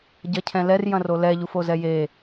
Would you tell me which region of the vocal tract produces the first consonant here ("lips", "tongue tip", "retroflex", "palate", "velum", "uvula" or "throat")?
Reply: palate